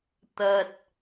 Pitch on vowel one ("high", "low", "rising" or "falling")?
low